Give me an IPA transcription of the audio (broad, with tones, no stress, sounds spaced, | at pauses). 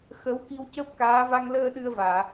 x əː˧˥ w k i˧ w c əː˦˥ p̚ k aː˧˥ v a˧ ŋ l əː˧ ɗ ɨ˧ ə̯ v aː˨˩˨